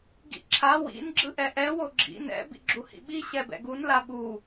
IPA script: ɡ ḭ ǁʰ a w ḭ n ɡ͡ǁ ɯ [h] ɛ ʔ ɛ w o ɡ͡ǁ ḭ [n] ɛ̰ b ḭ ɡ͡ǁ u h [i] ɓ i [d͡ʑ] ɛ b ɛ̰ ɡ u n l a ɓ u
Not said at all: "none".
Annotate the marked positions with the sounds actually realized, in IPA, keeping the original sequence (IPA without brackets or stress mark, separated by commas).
ʔ, n, ḭ, ɕ